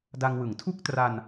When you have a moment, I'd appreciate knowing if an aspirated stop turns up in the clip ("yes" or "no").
yes